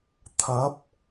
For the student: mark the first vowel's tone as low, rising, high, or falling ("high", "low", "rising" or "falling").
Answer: rising